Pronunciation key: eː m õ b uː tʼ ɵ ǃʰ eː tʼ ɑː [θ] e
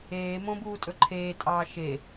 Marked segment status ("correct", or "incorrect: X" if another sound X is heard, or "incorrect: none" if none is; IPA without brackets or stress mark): incorrect: ʃ